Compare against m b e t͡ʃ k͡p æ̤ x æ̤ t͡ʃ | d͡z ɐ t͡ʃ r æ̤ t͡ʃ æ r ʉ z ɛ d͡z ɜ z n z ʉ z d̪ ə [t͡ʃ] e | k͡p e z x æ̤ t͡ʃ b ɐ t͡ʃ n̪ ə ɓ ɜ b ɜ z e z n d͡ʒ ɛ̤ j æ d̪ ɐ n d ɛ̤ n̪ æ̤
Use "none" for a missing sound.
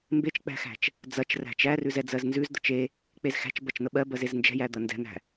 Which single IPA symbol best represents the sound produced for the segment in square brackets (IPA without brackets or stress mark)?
t͡ʃ